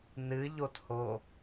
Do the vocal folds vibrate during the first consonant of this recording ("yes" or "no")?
yes